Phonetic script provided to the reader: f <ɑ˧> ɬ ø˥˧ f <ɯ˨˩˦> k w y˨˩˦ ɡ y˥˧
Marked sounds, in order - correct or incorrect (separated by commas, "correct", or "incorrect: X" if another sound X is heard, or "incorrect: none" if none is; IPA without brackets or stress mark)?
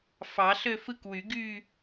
incorrect: ɑ˨˩˦, incorrect: ɯ˥˧